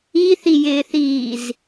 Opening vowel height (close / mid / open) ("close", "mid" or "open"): close